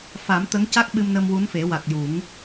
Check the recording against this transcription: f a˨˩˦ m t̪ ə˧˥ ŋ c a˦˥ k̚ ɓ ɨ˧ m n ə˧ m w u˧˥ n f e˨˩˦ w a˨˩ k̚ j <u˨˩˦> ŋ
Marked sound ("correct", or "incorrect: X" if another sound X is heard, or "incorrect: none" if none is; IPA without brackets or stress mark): correct